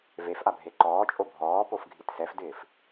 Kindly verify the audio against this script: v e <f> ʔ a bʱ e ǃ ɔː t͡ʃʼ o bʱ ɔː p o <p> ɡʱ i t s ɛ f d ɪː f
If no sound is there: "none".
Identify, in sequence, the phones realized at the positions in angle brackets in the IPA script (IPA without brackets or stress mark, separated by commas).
f, f